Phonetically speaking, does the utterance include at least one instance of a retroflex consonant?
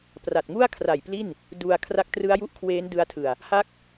no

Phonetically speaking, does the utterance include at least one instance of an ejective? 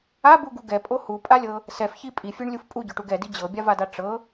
yes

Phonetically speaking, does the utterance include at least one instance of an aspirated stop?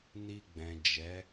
no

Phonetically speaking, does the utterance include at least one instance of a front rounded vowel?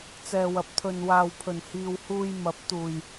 no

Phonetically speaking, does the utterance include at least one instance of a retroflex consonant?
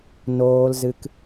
no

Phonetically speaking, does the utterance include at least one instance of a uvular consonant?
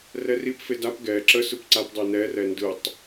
no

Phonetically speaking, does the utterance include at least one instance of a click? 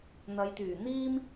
no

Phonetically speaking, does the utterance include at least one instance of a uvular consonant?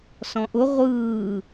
yes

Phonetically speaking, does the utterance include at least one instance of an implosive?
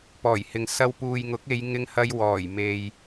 no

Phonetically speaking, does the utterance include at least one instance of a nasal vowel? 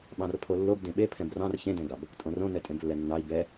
yes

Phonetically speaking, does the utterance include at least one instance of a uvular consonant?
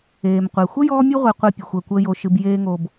yes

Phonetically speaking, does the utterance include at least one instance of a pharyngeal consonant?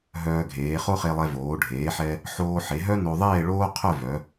yes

